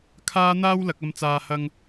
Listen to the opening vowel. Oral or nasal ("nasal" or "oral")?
oral